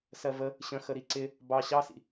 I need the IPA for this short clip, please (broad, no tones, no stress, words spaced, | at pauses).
sɜvə | ɕə̃ xəɾiǀɪ | bɑ ɕɑsḭ